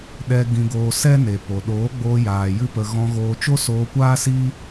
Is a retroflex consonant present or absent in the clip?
absent